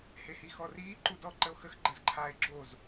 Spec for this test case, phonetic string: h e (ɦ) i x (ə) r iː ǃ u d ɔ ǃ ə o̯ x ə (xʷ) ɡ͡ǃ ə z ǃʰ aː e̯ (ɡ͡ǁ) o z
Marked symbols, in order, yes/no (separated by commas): no, no, no, yes